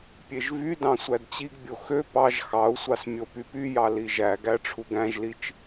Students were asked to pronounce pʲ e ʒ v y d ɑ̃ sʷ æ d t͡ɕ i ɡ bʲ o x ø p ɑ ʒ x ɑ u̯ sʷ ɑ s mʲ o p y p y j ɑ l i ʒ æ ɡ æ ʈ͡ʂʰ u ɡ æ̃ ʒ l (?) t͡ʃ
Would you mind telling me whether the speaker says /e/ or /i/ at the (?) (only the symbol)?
i